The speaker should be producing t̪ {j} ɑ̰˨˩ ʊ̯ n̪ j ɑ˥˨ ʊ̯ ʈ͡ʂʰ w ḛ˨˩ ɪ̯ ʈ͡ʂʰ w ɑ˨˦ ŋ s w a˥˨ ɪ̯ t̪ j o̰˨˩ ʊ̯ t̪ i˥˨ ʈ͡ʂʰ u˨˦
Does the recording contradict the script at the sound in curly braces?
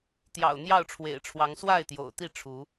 no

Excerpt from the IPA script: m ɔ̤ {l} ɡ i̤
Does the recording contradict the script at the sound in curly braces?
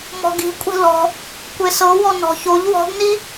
yes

